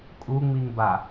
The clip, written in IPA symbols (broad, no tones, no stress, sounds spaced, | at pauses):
kʼ u ŋ͡m i ŋ b a